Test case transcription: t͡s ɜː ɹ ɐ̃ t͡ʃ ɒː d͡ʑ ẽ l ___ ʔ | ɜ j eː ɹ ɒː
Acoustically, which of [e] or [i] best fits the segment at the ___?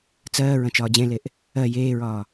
e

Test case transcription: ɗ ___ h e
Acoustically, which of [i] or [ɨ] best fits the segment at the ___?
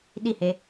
i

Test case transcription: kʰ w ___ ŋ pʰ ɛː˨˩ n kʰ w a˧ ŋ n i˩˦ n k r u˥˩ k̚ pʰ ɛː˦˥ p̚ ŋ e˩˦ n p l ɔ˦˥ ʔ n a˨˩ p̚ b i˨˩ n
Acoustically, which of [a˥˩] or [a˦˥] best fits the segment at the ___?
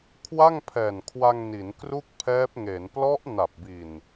a˥˩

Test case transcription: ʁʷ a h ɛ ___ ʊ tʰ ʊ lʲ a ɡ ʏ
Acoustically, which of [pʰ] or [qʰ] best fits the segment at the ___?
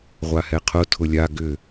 qʰ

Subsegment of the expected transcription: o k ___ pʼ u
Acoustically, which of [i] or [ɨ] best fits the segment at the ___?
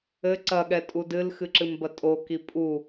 i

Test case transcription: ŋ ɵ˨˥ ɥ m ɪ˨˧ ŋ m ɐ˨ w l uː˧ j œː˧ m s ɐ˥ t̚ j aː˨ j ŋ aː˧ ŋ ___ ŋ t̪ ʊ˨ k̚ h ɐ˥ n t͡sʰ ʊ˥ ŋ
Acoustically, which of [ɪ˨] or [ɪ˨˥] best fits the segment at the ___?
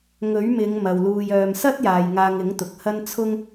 ɪ˨˥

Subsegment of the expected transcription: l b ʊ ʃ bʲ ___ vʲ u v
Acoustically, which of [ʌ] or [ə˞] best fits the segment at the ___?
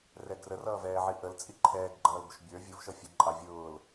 ə˞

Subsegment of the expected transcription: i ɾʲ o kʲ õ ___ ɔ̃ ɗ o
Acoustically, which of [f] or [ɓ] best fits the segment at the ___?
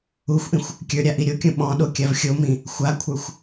ɓ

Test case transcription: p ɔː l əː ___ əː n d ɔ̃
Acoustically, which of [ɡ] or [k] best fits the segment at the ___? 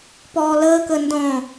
k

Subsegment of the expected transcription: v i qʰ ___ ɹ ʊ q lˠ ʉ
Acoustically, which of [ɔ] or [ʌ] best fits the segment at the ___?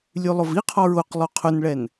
ɔ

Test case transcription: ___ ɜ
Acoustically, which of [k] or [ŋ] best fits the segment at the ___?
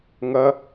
ŋ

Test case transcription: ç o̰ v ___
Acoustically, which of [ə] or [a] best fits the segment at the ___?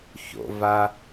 a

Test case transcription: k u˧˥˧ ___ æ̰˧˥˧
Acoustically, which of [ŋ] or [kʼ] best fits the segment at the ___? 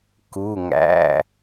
ŋ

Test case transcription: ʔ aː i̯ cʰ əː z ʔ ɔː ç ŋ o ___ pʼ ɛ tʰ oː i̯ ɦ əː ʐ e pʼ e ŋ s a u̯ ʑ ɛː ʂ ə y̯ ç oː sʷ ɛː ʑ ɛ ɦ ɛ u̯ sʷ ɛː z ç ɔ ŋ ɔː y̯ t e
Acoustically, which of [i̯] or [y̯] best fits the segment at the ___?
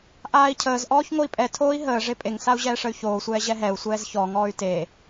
i̯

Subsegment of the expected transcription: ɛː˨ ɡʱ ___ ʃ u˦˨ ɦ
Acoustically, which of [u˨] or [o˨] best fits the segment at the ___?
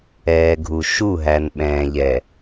u˨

